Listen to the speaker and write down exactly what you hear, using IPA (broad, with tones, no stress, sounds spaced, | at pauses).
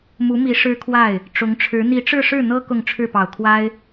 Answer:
m u˧˥ m i˧˥ ʂ ɻ̩˥ kʰ w a˥˩ ɪ̯ | ʈ͡ʂ ʊ˧˥ ŋ ʈ͡ʂʰ ɻ̩˧˥ n̪ i˧˥ ʈ͡ʂ ɻ̩˥˧ ʂ ɻ̩˥˩ n̪ ɤ˥ k ʊ˥˧ ŋ ʈ͡ʂʰ ɻ̩˥˩ p ɑ˨˩ ʊ̯ kʰ w a˥ ɪ̯